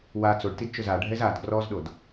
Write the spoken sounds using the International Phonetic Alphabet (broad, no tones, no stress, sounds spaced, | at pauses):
w a t͡s o ɖ t i d t͡ʃ ʊ z a ɖʱ ɛ z a d ɡ r ɔ z ɗ o d